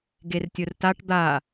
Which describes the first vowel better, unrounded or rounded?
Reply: unrounded